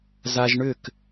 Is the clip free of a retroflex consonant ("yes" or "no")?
no